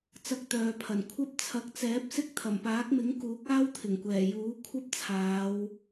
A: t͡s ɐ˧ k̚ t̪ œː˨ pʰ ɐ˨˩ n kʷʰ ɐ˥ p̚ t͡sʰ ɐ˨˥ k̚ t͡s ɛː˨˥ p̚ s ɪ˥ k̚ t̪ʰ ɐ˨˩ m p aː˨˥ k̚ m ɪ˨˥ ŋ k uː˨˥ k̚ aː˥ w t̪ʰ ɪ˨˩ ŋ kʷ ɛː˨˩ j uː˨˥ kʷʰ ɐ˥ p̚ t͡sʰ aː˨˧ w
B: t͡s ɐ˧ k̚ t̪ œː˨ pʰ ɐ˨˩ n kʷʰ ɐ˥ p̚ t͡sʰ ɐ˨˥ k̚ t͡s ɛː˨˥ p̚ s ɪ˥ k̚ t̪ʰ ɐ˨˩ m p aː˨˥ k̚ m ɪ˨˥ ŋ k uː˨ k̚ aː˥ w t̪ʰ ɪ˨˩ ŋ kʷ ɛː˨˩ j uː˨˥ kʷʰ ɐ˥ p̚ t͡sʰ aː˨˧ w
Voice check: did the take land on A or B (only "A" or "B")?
A